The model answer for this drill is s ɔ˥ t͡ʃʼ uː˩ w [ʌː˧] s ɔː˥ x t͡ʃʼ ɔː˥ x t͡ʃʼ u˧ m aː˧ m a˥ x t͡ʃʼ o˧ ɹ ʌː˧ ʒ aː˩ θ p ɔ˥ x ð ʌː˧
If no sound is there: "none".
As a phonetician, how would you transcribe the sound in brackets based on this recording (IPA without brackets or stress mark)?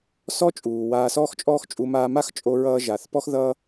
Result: aː˧